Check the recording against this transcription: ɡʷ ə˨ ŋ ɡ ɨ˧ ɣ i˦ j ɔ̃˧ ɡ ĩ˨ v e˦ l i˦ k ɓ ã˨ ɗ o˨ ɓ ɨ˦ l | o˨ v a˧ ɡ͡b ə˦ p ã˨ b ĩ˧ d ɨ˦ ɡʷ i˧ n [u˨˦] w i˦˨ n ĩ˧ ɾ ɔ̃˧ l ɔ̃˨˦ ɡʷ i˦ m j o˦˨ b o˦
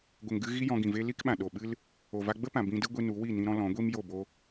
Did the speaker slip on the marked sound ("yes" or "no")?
no